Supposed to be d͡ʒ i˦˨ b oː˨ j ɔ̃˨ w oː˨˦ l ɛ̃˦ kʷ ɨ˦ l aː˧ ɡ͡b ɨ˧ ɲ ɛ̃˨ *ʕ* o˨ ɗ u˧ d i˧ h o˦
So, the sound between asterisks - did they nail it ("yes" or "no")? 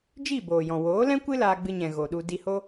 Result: no